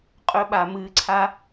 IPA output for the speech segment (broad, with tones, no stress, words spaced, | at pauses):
qʼɵ˧ɓa˨ mɨː˧ǀʰa˦